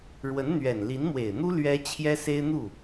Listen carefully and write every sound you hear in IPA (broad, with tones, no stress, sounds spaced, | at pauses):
ɻ w ə˧˥ n n̪ ɥ ɛ˨˩ n l i˧˥ n m w e˨˩ ɪ̯ n̪ u˥ l ɥ ɛ˥ t͡ɕʰ j ɛ˥ s e˥ ɪ̯ n̪ u˥˩